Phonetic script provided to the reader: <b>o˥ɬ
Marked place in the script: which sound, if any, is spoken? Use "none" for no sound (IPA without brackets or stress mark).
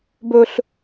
b